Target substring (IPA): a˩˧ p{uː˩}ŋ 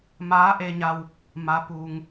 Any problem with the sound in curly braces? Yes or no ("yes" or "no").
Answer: no